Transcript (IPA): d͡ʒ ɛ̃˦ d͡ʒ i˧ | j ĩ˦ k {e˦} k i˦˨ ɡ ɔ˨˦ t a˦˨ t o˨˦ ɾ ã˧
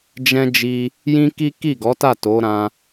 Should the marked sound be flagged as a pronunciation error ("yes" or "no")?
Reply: yes